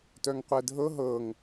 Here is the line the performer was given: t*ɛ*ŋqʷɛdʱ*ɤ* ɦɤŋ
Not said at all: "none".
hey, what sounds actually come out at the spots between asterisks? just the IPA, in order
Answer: œ, ɤ

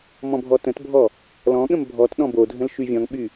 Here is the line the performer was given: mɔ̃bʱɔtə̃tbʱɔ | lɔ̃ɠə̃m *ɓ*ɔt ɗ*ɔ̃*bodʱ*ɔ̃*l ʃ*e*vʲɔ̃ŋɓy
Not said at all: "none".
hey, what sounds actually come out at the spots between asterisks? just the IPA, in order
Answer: bʱ, ɔ̃, ə̃, y

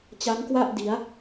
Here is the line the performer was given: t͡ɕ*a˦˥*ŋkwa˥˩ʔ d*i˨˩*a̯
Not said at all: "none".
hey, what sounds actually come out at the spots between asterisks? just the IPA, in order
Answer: a˦˥, i˩˦

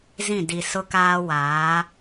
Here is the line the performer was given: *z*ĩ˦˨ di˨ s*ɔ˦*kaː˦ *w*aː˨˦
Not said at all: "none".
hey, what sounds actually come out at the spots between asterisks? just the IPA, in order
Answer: z, ʊ˦, w

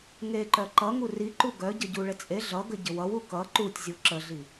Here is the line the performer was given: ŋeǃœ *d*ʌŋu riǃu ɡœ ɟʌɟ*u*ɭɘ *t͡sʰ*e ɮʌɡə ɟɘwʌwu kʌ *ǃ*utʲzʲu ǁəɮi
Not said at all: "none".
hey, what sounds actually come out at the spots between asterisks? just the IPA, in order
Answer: ǃ, u, t͡sʼ, ǃ

